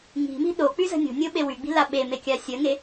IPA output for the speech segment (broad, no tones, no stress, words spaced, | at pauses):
ŋi̤mi̤ ɗok͡pyzə̤ nʲo̤nʲoɓe wyɡ͡bi̤la ɓemekʲa sʲəŋe